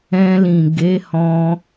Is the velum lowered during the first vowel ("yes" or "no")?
yes